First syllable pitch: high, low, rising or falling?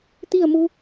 falling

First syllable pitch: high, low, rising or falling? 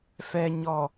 low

